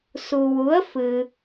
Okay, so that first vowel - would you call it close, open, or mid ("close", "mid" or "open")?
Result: close